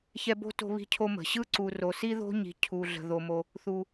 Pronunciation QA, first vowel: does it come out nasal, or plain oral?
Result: oral